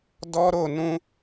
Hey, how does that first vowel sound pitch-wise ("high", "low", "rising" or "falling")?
high